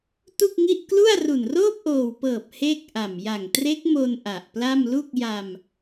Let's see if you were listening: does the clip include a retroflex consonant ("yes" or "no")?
no